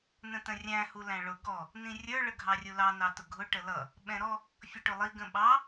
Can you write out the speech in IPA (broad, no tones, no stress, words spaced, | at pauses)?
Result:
nə̃tə̃rʲæ̃ hulæ̃ɭʊ ɡɔ | nĩrʲə˞ ɭəɡʱɑrʲulɑ nɑtʊɡʱʊ ʈəlʌ | ɓɛ̃ɾɔ | fʲʌʈʊlˠi ɡə̃ɓɑ